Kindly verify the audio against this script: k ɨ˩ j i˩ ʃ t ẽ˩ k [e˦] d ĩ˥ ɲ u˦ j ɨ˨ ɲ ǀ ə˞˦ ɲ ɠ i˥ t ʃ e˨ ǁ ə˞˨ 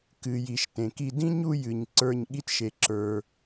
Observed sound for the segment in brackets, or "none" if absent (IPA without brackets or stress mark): i˦